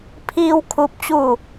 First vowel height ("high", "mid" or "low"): high